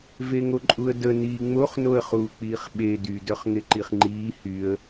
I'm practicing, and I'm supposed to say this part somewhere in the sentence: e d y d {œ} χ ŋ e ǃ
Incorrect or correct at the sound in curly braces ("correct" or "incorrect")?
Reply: correct